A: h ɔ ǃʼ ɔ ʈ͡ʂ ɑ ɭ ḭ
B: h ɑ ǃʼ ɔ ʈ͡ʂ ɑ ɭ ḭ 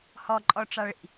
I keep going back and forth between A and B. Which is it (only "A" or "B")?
A